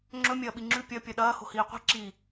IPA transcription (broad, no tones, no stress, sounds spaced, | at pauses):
ŋ͡ǁ ɵ mʲ ɐː ɓ i ŋ͡ǁ ʉ pʲ ɐ pʲ ɐ ɗ ɐː h o̤ h iː qʷ i̤ ǁ i